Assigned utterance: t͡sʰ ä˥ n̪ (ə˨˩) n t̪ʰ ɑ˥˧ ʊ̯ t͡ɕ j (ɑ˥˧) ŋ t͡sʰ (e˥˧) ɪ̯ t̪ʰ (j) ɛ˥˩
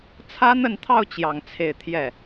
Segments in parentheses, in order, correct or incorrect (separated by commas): incorrect, correct, correct, correct